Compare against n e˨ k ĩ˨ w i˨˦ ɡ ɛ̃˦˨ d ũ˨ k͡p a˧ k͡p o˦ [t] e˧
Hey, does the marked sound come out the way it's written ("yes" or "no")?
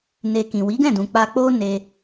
no